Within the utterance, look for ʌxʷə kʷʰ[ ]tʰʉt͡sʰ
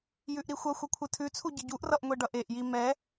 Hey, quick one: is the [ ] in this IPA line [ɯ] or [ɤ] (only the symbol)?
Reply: ɯ